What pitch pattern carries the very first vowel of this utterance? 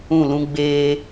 falling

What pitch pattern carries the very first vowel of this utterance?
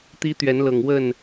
high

